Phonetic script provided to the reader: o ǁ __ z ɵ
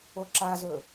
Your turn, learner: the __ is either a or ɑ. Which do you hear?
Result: a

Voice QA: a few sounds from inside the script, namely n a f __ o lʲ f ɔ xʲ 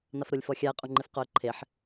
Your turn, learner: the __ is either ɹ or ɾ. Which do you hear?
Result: ɾ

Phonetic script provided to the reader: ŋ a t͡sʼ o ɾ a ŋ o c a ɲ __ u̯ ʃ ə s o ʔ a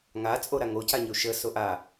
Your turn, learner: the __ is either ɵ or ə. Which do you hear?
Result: ɵ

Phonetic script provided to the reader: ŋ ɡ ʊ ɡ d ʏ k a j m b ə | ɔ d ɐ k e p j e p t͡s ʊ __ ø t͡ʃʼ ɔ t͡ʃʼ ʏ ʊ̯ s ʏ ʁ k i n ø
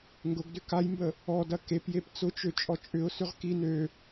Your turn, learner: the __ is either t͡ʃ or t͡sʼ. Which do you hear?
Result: t͡ʃ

